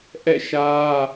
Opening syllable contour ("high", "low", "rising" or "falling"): falling